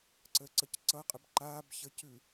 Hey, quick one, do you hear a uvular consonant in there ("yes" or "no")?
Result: yes